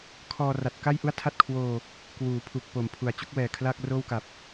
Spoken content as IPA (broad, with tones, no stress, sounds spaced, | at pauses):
kʰ ɔː˧ r a˨˩ t̚ k a˥˩ j ʔ u˥˩ a̯ tʰ a˥˩ t̚ kʰ w oː˧ | k w uː˩˦ pʰ u˨˩ k̚ p o˨˩ m pʰ u˩˦ a̯ t͡ɕ u˦˥ k̚ w ɛː˨˩ kʰ l a˥˩ k̚ r oː˥˩ w k a˨˩ p̚